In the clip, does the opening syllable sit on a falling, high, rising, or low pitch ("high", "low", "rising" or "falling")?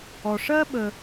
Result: low